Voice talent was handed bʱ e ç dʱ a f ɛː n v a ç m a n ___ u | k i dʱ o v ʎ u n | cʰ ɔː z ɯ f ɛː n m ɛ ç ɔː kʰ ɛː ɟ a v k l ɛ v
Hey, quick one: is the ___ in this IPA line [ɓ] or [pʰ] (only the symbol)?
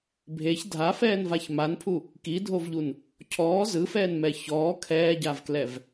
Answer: pʰ